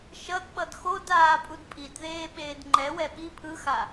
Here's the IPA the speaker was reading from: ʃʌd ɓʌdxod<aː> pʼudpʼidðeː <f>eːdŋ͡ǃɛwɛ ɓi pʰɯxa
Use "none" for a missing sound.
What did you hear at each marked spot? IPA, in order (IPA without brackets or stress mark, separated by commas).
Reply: aː, ɓ